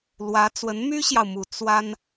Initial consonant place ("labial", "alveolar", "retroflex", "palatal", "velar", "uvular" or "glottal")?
alveolar